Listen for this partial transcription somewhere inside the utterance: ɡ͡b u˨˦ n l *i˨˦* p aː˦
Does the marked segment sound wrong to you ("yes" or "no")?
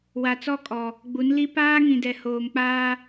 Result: yes